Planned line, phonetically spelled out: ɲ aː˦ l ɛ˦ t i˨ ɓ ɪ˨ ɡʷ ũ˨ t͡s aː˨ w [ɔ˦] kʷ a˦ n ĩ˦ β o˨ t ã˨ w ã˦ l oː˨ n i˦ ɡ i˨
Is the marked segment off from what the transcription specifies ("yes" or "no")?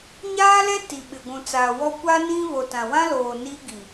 no